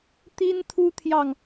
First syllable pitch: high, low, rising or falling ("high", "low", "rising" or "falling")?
high